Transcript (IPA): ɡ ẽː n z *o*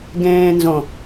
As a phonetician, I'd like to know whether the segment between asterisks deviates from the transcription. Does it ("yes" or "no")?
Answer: yes